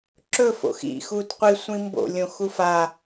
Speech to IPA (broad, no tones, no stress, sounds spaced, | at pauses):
ǁ ɵ f o̰ x ḭ x uː t qʷ i sʷ ĩ m b o̰ lʲ õ x u f a